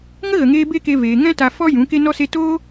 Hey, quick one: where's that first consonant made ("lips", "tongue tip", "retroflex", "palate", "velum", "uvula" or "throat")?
velum